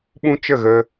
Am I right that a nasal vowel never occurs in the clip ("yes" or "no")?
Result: no